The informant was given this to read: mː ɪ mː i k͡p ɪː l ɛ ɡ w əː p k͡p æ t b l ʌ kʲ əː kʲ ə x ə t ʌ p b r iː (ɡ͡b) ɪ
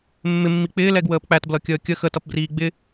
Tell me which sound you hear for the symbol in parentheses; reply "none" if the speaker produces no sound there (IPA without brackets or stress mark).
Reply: ɡ͡b